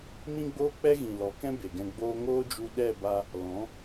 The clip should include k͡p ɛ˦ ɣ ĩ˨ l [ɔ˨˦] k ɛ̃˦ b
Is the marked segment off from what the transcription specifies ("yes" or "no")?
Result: no